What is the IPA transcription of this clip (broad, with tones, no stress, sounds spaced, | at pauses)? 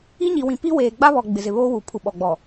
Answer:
i˦ ɲ i˨ w ĩ˨ p i˦ w eː˨ ɡ͡b a˦ β ɔ˨ ɡ͡b ɪ˨ z ɪ˨ β oː˦ w uː˨ pʰ u˨ ɓ ɔ˨ ɡ͡b ɔ˨